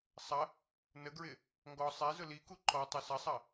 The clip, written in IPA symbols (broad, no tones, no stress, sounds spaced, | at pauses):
sˤ ɐ | n ə ɡ ɹ ɪ | ŋ ɡ ɔ sˤ ɛ z ʊ l i k u ǃ ɔ tˤ ø s ɐ sˤ ɐ